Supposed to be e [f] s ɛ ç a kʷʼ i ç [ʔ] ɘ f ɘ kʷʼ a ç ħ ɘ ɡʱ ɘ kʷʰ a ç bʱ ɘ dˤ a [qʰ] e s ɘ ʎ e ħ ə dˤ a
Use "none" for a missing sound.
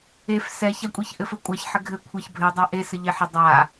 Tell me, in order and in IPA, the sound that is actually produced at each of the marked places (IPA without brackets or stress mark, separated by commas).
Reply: f, ʔ, ʔ